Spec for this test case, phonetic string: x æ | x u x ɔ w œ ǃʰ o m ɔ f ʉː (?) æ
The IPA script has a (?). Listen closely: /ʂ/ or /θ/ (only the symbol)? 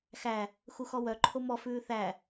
θ